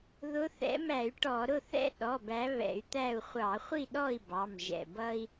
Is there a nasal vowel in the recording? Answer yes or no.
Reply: no